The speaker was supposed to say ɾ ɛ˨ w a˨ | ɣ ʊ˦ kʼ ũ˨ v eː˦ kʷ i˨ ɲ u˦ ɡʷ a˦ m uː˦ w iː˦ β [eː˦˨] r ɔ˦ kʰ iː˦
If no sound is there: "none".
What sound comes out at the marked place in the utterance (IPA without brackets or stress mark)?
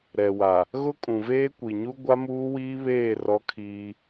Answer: eː˦˨